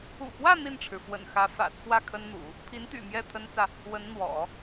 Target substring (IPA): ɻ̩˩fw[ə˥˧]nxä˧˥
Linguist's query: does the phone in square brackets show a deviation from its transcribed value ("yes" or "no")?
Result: yes